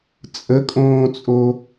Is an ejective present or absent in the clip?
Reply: present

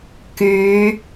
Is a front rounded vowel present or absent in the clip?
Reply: present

